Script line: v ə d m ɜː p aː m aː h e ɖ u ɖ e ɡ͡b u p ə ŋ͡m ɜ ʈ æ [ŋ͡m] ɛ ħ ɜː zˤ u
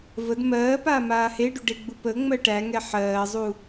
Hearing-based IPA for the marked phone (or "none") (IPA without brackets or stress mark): ŋ